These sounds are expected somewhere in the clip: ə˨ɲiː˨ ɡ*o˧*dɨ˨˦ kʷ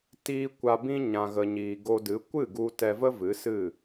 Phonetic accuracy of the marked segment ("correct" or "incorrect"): correct